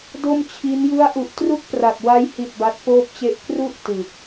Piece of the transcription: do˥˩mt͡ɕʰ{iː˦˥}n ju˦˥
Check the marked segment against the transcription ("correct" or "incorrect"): incorrect